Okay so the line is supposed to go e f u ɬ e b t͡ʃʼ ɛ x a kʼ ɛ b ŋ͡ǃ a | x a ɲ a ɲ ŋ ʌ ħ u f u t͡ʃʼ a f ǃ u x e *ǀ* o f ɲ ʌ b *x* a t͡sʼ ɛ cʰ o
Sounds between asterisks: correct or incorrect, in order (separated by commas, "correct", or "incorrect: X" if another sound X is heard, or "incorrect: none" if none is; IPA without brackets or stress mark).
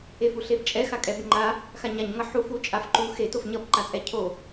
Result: incorrect: t, incorrect: ǃ